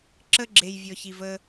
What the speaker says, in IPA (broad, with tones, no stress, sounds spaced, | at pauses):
ǁ ə˦ ɡ͡ǁ e˨ j vʲ ɔ˨ ç i˨ v ə˦